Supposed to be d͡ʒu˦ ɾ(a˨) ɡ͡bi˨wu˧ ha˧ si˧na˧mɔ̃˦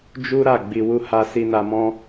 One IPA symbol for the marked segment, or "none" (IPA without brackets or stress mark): a˦˨